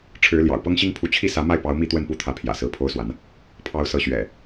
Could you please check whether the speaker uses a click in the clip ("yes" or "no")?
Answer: no